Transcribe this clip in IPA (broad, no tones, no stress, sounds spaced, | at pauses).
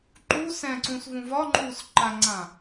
ǃ u s ɛ̃ ǀ ũ s v ũ v ɒ ŋ͡ǃ uː s ǃ a ŋ͡ǀ ã